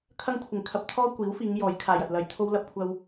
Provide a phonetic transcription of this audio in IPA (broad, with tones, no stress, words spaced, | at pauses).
kʰɐ˥ŋkʷʰɪ˨˩ŋkʰɐ˧p̚ t̪ʰɔː˥kʷiː˨˥wfiː˨˧ŋ jɔː˨˥jkʰaː˨jɐ˨t̚lɐ˧j t̪ʰo˥wlɐ˥p̚kʷʰɐ˥w